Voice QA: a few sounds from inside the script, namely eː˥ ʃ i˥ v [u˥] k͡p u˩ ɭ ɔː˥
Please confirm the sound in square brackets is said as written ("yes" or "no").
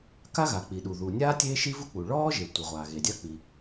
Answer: yes